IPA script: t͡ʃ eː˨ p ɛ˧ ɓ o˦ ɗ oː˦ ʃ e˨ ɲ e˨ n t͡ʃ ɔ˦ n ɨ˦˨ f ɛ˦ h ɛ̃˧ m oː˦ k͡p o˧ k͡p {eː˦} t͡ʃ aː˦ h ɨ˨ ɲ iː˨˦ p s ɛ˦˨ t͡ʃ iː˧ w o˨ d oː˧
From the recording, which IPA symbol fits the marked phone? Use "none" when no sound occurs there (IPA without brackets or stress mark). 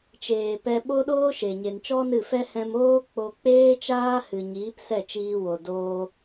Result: eː˦